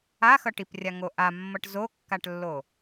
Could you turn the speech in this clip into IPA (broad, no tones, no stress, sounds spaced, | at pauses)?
a x ʌ ʈ i p rʲ a ŋ o ʔ a mː ʌ ʈ z o kː a ʈ lː o